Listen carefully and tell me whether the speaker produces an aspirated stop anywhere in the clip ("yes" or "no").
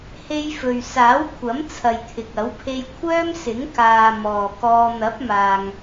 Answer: yes